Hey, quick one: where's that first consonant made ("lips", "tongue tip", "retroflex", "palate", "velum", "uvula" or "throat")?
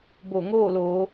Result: lips